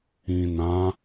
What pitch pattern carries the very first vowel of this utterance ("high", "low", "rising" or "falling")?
low